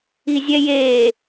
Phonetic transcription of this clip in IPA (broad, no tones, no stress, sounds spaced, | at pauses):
i zʲ ɛ j eː